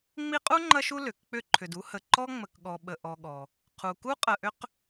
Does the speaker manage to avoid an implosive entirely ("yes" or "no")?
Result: no